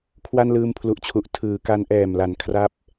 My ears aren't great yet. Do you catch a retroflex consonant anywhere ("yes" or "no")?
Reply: no